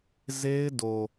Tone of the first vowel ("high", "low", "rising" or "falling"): high